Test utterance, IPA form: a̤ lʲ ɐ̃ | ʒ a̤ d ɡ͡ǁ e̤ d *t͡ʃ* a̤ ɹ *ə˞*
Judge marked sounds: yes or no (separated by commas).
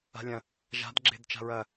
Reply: yes, no